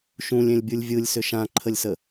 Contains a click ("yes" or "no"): yes